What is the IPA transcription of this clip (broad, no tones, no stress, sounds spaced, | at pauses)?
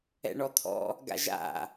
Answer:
ɛ̰ ɳ ɔ t̪ʰ ɔ̰ | ɡ a̰ ʒ a̰